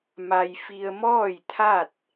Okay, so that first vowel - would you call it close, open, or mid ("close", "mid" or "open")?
open